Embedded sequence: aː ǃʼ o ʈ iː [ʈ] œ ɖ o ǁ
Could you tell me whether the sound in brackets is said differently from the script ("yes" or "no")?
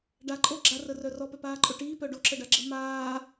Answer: yes